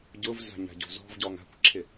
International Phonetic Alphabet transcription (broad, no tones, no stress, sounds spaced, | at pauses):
ɟ ʊ v z a̤ ɲ a̤ ɟ o̤ z ɔ̤ v ɟ ɔː ŋ a̤ kʷ ǁʰ ɪ